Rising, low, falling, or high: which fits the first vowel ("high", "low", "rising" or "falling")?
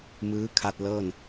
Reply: rising